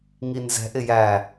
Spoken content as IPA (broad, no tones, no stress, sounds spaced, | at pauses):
ŋ i n z ɛ̤ ʔ ɪ j æ